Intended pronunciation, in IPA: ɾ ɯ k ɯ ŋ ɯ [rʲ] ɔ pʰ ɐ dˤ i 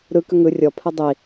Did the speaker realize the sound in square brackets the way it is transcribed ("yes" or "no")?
yes